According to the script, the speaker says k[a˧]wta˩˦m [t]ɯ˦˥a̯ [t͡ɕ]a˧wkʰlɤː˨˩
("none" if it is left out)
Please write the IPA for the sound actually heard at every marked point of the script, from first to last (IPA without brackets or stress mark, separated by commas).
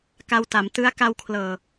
a˧, t, k